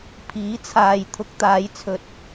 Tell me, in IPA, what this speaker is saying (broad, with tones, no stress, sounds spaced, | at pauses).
pʰ iː˨˥ t͡sʰ aː˨ j t̪ʰ ʊ˨˥ k̚ t̪ aː˨˧ j t͡sʰ ɵ˨ t̚